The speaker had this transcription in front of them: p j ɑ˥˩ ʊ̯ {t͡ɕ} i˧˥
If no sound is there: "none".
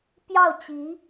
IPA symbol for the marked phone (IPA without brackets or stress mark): t͡ɕ